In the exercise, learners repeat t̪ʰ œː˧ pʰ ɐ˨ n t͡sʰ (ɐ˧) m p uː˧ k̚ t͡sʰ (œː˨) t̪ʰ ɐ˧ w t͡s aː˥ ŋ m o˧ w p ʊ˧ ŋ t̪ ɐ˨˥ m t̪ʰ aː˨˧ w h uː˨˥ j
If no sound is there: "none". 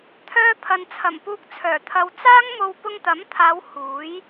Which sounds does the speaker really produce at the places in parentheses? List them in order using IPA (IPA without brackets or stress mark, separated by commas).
ɐ˨˩, œː˨˩